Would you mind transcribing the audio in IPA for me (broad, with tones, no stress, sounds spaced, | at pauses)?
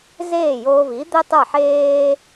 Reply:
z eː˥˩ j oː˧ v i˩˥ d̪ e˥ tˤ ə˞˥˩ ħ eː˧